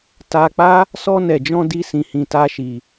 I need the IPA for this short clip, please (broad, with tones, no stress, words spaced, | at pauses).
ta˧k͡pa˦ | sɔ˧nɛ˨d͡ʒɔ̃˧ di˦sĩ˧ hĩ˧ta˦ʃi˧